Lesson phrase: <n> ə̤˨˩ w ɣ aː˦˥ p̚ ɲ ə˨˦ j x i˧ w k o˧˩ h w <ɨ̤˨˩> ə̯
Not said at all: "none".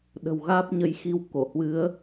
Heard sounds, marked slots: ɗ, ɨ˨˦

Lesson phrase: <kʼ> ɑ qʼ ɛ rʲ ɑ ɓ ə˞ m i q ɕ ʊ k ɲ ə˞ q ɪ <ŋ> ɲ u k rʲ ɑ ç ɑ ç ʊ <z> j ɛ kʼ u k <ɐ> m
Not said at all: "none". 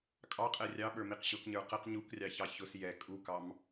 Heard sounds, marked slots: kʼ, q, s, ɑ

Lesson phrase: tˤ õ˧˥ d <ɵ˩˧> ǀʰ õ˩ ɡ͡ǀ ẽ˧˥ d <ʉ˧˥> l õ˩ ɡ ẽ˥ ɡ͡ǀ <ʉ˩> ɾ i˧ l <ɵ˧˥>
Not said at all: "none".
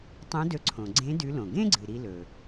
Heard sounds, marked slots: ɵ˧, ʉ˧˥, ɨ˩, ɵ˩

